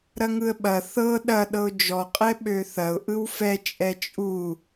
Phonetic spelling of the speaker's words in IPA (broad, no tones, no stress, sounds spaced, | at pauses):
ɾ ɐ ŋ ɯ ə̯ ɓ ɐ θ ɤ ɗ ɐ ɗ ɤ ʊ̯ d͡ʒ ɔ qʼ ɛ ɓ ø θ ɐ ʊ̯ ʔ ɯ w f ɛ t͡ʃʼ ɛ t͡ʃʼ u